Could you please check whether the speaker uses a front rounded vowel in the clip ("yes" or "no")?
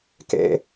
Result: no